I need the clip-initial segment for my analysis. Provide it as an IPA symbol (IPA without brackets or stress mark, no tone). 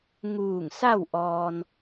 ŋ